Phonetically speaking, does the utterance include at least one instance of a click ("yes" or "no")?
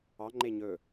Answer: yes